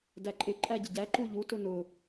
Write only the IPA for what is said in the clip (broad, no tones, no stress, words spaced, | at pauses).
dæǃʼɪ ǃʼæɟɪɟæ ǃuʎu tʊnʊ